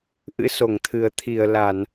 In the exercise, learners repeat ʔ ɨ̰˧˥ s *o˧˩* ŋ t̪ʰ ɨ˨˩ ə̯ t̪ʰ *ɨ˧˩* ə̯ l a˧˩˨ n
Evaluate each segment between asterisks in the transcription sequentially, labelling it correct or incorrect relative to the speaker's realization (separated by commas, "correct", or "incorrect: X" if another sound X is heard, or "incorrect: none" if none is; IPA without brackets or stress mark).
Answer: correct, incorrect: i˧˩